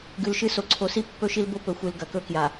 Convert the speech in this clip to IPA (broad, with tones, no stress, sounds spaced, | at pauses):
ɡ ʉ˨ l ʃ ɨ˦ s o˨ ǀʰ o˨ s i˦ pː ɵ˦ ʃ i˦ l b o˦ p ɵ˨ xʷ ɨ˨ l ɡ ɐ˨ k ɵ˦ k j a˨